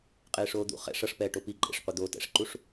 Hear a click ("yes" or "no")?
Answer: yes